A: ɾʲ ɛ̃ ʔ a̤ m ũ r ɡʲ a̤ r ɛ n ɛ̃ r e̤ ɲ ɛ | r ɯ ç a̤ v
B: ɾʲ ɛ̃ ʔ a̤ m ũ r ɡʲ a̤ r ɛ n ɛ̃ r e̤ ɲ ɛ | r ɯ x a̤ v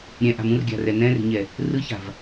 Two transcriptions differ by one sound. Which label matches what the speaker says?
A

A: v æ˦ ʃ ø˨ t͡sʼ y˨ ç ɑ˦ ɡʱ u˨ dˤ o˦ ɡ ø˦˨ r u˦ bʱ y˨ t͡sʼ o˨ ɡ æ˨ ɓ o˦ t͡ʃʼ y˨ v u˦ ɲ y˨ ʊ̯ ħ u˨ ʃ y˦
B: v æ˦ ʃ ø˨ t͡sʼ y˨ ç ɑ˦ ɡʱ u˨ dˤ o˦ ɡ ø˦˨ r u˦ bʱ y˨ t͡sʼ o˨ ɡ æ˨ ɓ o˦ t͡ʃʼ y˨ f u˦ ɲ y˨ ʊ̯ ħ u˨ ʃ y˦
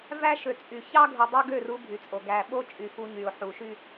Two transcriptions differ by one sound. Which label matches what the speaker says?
B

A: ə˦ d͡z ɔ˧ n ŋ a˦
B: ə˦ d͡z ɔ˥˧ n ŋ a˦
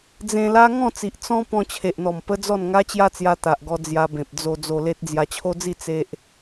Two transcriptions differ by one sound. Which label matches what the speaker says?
B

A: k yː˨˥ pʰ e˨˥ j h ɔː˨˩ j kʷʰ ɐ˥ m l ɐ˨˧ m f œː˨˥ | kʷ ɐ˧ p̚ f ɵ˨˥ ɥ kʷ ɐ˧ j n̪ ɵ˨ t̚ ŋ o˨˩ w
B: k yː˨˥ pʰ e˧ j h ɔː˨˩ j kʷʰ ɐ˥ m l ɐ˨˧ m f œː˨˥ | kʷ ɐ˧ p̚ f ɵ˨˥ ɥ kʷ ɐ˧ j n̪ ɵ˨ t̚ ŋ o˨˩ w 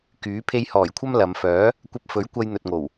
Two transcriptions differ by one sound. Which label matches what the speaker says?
B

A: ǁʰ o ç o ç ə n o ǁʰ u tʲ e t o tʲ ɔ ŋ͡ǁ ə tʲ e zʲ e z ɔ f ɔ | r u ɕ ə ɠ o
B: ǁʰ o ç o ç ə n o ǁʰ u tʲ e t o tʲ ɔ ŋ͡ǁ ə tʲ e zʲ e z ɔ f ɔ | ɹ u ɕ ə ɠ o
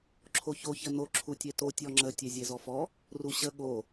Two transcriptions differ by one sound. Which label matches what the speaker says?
A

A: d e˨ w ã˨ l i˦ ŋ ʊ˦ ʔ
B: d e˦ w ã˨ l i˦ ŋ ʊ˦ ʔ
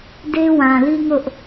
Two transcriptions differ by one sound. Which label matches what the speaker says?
B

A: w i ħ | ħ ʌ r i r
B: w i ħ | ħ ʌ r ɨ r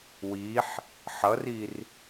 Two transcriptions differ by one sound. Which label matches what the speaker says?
A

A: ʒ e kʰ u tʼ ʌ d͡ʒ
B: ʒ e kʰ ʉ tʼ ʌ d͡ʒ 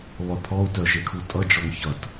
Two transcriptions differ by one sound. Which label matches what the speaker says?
A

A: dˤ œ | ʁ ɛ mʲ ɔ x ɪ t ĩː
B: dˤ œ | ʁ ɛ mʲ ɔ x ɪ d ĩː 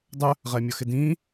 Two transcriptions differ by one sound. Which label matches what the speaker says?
B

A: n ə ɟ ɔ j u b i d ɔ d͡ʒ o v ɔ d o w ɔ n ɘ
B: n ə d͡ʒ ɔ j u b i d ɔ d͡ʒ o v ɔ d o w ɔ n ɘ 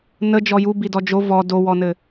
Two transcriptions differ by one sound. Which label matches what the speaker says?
B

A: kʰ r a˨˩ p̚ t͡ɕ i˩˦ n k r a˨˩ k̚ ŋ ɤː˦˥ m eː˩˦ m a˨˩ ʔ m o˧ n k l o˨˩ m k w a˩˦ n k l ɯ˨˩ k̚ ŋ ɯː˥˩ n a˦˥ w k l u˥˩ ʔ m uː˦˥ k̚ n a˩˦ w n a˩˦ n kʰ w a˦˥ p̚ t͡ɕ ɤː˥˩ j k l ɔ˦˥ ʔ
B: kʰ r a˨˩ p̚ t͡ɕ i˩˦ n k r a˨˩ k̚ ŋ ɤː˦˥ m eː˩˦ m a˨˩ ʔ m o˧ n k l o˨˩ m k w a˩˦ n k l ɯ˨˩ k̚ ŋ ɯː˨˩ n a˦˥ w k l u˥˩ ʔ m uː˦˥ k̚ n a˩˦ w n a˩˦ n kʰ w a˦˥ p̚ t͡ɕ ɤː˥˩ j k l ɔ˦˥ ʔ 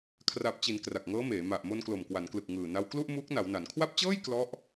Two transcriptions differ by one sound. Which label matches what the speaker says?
B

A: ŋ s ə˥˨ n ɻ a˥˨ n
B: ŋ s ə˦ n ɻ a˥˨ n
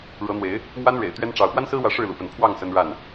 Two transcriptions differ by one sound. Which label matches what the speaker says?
B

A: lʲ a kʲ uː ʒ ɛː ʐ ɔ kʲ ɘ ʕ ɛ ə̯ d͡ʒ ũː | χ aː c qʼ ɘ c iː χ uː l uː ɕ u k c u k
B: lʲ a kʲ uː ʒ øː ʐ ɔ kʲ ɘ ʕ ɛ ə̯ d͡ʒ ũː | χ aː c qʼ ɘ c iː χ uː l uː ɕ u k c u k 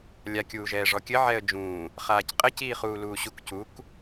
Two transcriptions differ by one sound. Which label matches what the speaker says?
A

